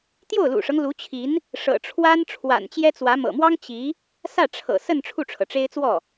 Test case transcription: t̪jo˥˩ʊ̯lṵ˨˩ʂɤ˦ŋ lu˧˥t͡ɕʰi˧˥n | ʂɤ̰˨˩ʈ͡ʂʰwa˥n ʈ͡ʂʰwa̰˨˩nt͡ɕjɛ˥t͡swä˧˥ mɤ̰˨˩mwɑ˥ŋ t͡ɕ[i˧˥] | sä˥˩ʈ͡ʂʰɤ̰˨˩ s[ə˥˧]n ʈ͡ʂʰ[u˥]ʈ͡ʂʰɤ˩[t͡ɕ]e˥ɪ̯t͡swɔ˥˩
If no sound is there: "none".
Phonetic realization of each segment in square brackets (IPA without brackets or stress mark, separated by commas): i˧˥, ə˥˧, u˥˩, ʈ͡ʂ